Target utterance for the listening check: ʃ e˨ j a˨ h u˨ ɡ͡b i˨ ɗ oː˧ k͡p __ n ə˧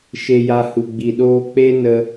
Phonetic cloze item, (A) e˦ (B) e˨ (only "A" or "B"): A